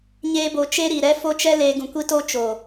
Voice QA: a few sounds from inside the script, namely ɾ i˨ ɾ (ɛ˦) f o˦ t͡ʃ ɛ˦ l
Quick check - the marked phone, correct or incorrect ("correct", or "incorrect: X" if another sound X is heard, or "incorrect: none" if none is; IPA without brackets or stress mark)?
correct